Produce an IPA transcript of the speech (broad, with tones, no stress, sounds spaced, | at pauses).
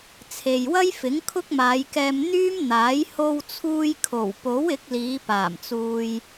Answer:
t͡sʰ e˨ j w ɐ˥ j f ɪ˨˥ ŋ kʰ ʊ˥ k̚ m aː˨˧ j k ɛː˧ m n̪ yː˥ m n̪ aː˨˥ j h o˧ w t͡sʰ uː˧ j kʰ o˨˩ w p o˨˥ w ɪ˨˥ k̚ l iː˨˧ p aː˨˩ m t͡s uː˨ j